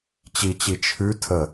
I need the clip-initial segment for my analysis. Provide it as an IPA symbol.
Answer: t͡ɕ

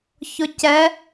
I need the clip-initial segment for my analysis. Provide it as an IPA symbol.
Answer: ç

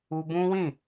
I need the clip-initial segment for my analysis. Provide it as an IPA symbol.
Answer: u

